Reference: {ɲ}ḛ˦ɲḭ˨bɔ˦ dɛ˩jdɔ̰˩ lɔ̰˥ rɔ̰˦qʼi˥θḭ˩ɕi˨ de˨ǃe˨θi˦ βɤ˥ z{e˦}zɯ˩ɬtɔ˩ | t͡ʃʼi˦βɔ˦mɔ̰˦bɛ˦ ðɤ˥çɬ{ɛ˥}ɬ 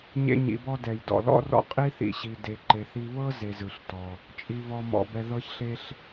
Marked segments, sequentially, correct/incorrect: correct, incorrect: e˨, incorrect: e˥

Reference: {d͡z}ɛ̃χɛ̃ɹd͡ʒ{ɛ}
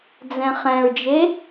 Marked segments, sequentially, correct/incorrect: correct, incorrect: e

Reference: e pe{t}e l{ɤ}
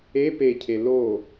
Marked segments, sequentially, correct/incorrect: incorrect: cʰ, incorrect: o

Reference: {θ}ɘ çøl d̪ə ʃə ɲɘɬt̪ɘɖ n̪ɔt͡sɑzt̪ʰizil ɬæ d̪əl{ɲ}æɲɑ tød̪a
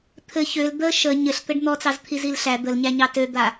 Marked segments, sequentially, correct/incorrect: incorrect: t̪ʰ, correct

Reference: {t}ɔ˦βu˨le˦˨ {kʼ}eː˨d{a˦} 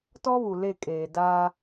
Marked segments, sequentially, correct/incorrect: correct, correct, correct

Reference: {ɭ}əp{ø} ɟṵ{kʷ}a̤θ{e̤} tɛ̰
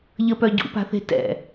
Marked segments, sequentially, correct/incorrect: incorrect: ʎ, incorrect: œ, incorrect: p, correct

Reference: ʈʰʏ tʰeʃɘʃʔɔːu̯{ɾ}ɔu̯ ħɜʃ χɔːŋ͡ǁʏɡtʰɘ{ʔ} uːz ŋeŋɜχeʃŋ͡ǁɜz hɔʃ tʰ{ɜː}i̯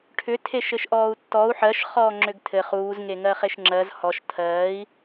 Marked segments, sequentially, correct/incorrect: incorrect: tː, incorrect: χ, correct

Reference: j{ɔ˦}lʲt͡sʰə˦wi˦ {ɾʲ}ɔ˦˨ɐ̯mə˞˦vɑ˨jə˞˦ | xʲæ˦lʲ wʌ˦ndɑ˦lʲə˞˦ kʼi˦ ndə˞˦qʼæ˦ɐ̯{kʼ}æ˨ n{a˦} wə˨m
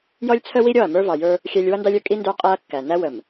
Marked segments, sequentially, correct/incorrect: correct, correct, incorrect: kː, incorrect: æ˦

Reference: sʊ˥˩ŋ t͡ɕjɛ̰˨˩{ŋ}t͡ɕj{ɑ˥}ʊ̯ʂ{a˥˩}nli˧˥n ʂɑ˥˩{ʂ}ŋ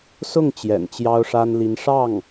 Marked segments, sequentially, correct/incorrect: incorrect: n, correct, incorrect: a˥, incorrect: none

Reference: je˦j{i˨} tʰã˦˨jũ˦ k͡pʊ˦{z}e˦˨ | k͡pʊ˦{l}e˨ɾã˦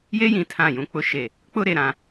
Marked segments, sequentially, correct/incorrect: incorrect: ĩ˨, incorrect: ʃ, incorrect: ɾ

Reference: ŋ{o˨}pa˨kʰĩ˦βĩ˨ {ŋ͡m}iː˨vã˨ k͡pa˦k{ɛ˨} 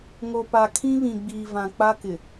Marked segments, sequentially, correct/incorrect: correct, incorrect: ɡ͡b, incorrect: ɪ˨

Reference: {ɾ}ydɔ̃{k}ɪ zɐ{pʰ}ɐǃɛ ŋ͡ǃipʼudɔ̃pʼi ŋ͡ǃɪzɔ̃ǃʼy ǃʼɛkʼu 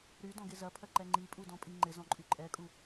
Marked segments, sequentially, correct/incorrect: correct, incorrect: ɡ, correct

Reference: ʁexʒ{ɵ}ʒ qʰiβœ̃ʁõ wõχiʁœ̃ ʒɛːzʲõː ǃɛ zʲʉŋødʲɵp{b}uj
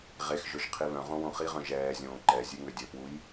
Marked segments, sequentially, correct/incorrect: correct, incorrect: w

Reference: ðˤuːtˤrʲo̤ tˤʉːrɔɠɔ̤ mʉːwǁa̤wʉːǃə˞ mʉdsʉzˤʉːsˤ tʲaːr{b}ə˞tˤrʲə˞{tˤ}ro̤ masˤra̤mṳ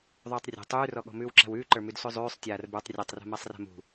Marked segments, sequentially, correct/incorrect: correct, correct

